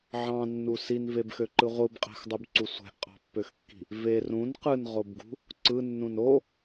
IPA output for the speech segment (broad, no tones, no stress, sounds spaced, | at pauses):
ʕ ɑ̃ nː u s i n v e b x ø ǃ ɯ ʁʷ ɯ b qʼ æ̤ x dˤ u b ǀ u sʷ æ̤ ʔ qʼ ɑ̤ pː ø x kː i̤ | v e r ũ n q ɯ n ʁ o b ɡ ṳ | ǀ ɯ nː ũ n o